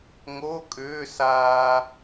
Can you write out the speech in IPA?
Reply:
ŋo kʼʏː saː

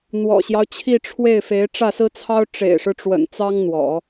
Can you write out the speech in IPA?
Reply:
n̪wɔ̰˨˩ɕjɑ˦ʊ̯t͡ɕʰi˥˧ ʈ͡ʂʰwe˥˩ɪ̯ fe˧˥ɪ̯ʈ͡ʂä˥˩sɹ̩˥t͡sʰɑ˥ʊ̯ ʈ͡ʂḛ˨˩ɪ̯ʂɻ̩˦ʈ͡ʂwə̰˨˩n t͡sɑ˥ŋn̪wɔ̰˨˩˦

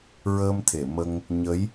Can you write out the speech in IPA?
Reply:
ɹəː˧mt̪ʰe˨˩˨mə˧ŋ | ɲə˧˥j

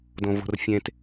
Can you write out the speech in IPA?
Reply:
dõvo̤rfʲẽt

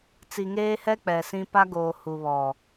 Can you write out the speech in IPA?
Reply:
t͡si˨ŋeː˦hɛ˦ k͡pɛ˨sĩ˦ pa˦ɡoː˨ hu˨βɔ˨

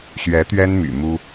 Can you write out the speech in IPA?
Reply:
ɕɥɛ˧˥ t̪ɥɛ˥nmy̰˨˩ mu˥

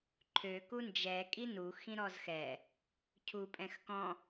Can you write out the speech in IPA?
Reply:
ǃʰø kund͡ʒɛ kʼinu xĩɾɔzxɛ | cʰu pʼɛ̃xkɔ̃

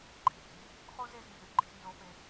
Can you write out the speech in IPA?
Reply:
ɡ͡ǃi˩hi˩˥ | χo˥ze˧z nzy˩˥ɡ͡ǃi˧znzo˧pe˧

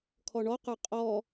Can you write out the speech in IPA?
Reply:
kʰɔɳɔqə˞ qʼɔ

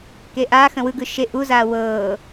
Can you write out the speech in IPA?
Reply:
keʔaːxə̃ wɯɡɯ ʃe ʔuzaː wɤː

